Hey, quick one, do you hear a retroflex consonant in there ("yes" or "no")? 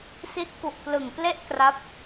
no